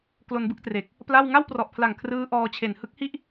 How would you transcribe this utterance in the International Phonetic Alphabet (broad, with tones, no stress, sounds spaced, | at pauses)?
k l o˧ n b ɯ˥˩ k̚ t r e˨˩ k̚ | p l a˥˩ w ŋ a˥˩ w p r ɔ˨˩ ʔ pʰ l a˨˩ ŋ kʰ r ɯː˦˥ ʔ ɔː˧ t͡ɕʰ e˨˩ n h ɯ˦˥ k̚ h i˥˩ ʔ